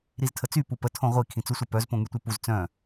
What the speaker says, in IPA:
ɾ i z tʰ ə t͡s y p u p ə tʰ õ ʁʷ i kʰ ĩ t͡s u sʷ œ p œ z p õ ŋ y tʷ e p u z t͡s œ̃

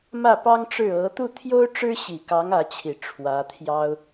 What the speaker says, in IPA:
m ä˥˩ p ɑ˥ ŋ ʈ͡ʂ ɻ̩˥˩ ɤ˧˥ t̪ u˥˩ t̪ʰ j o˥ ʊ̯ ʈ͡ʂ ɻ̩˥ ɕ i˨˩ k ɑ˧˥ ŋ ä˧˥ t͡ɕʰ i˨˩ ʈ͡ʂʰ w ä˧˥ t̪ʰ j ɑ˥ ʊ̯

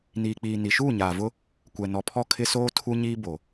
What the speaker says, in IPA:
n iː˨ k͡p iː˨ n i˨ ʃ uː˦˨ ɲ aː˨ v ʊ˦ | kʷ ɛ˨ n ɔ˨ pʰ ɔ˦˨ kʰ ɪ˦ s oː˦ tʰ u˦ ɲ iː˦ b o˨

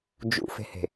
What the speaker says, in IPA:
d͡ʒ ṵ f e̤ h e̤

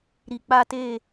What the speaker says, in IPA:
ɾ i˨ k͡p a˦ t e˦˨

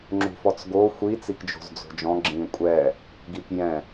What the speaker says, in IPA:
ŋ͡ǁ ṳ f ɔ t͡s ɡ o xʷ i t͡s i k d͡ʒ o̤ z d͡z o̤ d͡ʒ ɔ̃ ɡ͡ǁ ĩ kʷʼ ɛ | ɡ i k j ɛ̃

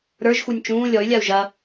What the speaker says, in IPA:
ɾ ə˞ ʒ x u nʲ t͡ʃ ũː lʲ ɔ y̯ lʲ a u̯ ʒ ɐ

